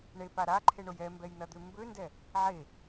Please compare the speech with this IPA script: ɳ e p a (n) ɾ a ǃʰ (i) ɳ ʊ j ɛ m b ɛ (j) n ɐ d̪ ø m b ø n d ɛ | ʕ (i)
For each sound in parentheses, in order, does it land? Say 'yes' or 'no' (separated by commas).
no, no, yes, no